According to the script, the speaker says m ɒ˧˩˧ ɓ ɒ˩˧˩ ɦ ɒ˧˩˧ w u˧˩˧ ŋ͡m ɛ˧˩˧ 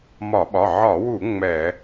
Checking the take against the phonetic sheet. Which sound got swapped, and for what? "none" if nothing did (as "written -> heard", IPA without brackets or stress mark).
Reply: ɦ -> ʕ